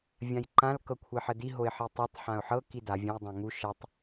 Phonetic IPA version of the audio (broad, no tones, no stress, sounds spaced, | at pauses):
vʲ ã j ǃ ã l k ɤ kʷʰ e ħ ə d i ɦ o ɪ̯ ħ i tˤ e tˤ ħ ã ʊ̯ ħ ɤ k i d a vʲ ã j dˤ ã ŋ u ʃ ə tˤ